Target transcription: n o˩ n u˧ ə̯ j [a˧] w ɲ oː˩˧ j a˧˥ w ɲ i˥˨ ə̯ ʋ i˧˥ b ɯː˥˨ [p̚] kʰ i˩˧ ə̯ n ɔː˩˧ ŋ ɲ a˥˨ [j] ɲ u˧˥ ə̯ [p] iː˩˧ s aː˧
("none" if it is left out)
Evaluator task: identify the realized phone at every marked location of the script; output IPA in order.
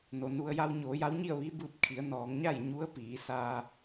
a˧, p̚, j, p

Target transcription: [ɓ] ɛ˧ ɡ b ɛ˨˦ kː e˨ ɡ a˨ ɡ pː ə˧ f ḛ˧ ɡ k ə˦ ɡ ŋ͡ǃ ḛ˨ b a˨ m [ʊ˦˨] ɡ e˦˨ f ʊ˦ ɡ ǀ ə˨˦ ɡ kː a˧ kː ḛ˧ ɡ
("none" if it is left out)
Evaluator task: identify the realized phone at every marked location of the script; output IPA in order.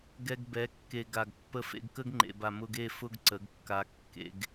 ɡ, ʊ˧

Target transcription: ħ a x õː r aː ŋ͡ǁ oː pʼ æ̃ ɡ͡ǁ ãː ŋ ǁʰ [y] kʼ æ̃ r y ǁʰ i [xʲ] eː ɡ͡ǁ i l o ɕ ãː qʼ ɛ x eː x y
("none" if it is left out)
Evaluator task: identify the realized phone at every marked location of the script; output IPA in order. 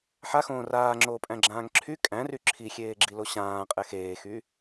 y, xʲ

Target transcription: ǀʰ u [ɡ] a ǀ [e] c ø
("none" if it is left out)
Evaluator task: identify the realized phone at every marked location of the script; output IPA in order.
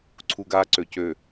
ɡ, ø

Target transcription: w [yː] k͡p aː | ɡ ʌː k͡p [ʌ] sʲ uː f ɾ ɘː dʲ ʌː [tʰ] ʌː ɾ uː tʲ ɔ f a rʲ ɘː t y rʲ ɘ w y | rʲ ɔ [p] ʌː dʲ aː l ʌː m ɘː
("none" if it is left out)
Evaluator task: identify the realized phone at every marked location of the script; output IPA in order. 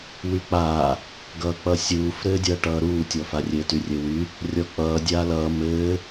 y, ʌ, ʈ, k͡p

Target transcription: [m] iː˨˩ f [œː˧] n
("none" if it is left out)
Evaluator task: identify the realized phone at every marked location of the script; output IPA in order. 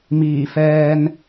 m, ɛː˧

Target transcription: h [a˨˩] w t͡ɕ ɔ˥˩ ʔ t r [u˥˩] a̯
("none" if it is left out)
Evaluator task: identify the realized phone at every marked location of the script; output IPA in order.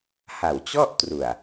a˨˩, u˨˩

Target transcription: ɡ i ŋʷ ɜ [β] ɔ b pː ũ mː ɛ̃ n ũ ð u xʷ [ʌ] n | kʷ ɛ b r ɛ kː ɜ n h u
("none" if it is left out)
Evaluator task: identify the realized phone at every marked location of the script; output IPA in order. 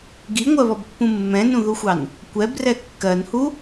β, ɑ

